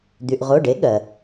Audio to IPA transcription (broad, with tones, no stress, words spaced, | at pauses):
d̪y˩ʔʁo˩˧˩ɖe˩˥ ɠɜ˩